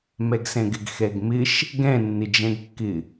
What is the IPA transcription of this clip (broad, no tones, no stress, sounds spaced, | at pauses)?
m ɛ ɡ s ɛ̃ ɡ ɪ ɡ x ɛ ɡ m ɪ ʃ | ɡ ɛ̃ nː ɪ d͡ʒ ɛ̃ ɡ kː ɪ